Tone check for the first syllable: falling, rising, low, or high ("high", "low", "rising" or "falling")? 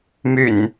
low